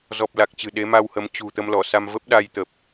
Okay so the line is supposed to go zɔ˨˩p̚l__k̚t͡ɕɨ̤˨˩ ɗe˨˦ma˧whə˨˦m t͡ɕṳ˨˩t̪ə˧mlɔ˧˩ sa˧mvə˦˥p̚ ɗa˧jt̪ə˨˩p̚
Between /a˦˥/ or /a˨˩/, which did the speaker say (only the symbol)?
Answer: a˨˩